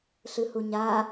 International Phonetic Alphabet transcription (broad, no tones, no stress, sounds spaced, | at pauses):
ɬ ɨ h u ɲ a